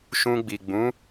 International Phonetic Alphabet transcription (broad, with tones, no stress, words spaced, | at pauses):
ʃũ˧ɡ͡bi˨ ɡ͡bũ˨˦